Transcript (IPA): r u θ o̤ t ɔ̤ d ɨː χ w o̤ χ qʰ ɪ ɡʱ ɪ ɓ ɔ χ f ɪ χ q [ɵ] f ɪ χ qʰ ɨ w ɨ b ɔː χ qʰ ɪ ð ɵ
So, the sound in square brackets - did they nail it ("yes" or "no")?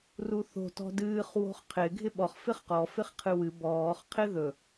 no